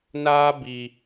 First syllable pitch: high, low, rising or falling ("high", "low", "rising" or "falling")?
high